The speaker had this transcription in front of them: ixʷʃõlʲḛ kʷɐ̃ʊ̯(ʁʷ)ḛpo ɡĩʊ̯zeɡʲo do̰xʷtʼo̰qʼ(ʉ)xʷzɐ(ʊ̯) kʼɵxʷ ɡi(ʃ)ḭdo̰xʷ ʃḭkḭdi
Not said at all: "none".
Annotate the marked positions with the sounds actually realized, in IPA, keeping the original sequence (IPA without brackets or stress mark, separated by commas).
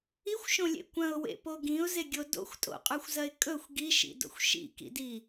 w, ʉ, ɪ̯, ʃ